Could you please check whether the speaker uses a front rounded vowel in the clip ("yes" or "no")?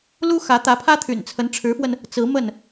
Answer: yes